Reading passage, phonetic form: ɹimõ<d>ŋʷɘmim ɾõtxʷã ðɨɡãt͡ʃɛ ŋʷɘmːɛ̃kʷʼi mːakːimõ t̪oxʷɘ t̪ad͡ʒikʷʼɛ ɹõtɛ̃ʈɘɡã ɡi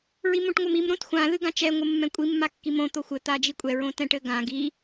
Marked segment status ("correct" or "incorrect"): incorrect